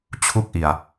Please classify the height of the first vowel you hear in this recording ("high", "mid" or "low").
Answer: high